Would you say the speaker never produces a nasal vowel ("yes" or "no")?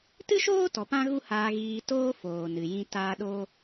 no